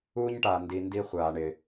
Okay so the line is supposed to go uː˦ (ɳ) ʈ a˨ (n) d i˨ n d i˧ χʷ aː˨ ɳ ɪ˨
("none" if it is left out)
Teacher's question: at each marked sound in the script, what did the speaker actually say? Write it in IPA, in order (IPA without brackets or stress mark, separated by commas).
ɲ, n